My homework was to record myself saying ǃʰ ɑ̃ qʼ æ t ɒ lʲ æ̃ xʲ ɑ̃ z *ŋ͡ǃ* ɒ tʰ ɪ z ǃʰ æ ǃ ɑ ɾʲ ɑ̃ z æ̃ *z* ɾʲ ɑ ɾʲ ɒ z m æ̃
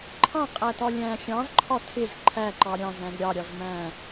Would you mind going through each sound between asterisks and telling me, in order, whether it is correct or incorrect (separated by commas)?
incorrect, correct